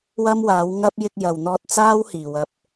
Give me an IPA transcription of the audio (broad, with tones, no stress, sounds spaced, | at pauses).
w ɐ˥ m w aː˨˥ w ŋ ɐ˥ p̚ j ɪ˧ k̚ j ɐ˨ w n̪ ɔː˧ t̚ t͡s aː˥ w h iː˨˩ w ɐ˨ p̚